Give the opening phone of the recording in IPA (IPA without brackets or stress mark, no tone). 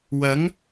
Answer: w